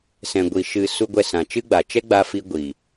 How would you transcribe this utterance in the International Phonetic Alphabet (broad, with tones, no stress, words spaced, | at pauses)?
sɛ̃˨ɡʷi˨ ʃɨ˨ su˦ ɡʷɛ˧sã˨t͡ʃɨ˦ɡ͡ba˨ t͡ʃɛ˦ɡ͡ba˧fi˧ ɡʷiː˨